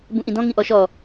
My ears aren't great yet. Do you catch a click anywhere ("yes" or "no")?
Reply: no